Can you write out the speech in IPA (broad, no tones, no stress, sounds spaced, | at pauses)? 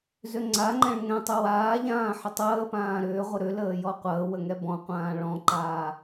z ø ŋ͡ǀ a ŋ͡ǃ ɛ̃ ɭ ŋ ɛ̃ tˤ ʏ w aː ʎ ãː ħ ə tˤ əː p ãː ɾ ʏː ʁʷ ə ɾ ʏ l əː j ɔ qʷ əː w ə ŋ ɛ b ɔ̃ qʷ ãː ɭ ɔ̃ ǃ aː